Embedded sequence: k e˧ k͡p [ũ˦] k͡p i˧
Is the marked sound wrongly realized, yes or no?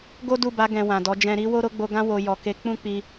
no